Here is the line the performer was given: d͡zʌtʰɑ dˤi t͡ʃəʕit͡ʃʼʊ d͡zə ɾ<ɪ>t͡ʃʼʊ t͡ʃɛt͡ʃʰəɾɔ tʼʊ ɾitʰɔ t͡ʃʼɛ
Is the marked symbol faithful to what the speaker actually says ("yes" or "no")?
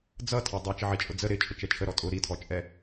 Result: yes